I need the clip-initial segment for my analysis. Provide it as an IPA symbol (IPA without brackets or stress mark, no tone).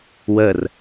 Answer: w